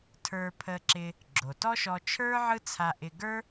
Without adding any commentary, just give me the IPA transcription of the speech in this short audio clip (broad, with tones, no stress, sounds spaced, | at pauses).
tʰ ə˞˧ pʰ ə˧ ǁ ɪ˧ | ɡ͡ǁ o˩ t ɔ˥ ʃ ɔ˧ t͡ʃʰ ə˞˥ ʕ ɯ˥ t͡sʰ a˧ ʔ ɪ˧ ɡ ə˞˥